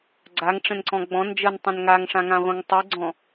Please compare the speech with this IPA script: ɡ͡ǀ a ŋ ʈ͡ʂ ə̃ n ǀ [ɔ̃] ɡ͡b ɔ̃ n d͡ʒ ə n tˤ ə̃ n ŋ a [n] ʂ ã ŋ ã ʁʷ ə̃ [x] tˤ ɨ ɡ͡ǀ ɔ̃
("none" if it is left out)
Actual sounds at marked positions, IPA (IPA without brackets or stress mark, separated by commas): ɔ̃, ŋ, ŋ